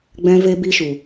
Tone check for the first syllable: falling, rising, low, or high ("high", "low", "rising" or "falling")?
high